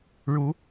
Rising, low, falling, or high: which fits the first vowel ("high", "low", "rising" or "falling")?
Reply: rising